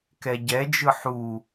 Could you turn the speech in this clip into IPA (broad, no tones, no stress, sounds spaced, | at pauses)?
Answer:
k ɛ ɟ ɛ d͡ʒ ɯ ħ u